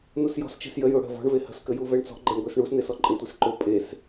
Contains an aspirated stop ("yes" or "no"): no